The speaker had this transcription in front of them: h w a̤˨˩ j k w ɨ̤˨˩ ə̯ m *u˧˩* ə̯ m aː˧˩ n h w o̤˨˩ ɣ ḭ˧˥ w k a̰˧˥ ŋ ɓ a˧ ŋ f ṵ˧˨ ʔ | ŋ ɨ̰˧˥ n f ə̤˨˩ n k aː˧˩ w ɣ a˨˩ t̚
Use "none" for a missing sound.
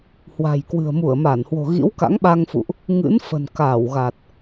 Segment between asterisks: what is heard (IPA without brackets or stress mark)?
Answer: u˧˩